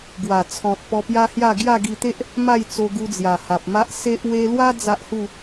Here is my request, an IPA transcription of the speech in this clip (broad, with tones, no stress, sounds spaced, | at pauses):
ɡ w a˨˩ t͡sʰ ɔ̃˨ t̚ p ɔ˧ p j a˦ h j a˥˧ ɡ j a˥˧ ɡ i˧ t̪ e˦ ʔ | m a˥˧ j t͡s o˧ ɡ u˧ d͡z j a˨˩ h a˨ p̚ m a˦ ʔ s e˦ ʔ w e˧ l w a˦ d͡z a˦ ʔ h u˥˧